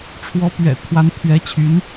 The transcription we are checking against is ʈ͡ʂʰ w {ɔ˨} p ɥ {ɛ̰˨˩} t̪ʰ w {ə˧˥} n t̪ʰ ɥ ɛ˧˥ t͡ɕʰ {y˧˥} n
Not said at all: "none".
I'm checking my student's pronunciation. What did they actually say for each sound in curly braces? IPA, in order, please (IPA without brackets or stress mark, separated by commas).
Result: ɔ˧˥, ɛ̰˨˩, a˧˥, y˧˥